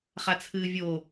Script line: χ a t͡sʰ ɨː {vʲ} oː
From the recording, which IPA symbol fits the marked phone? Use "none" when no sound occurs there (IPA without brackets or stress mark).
vʲ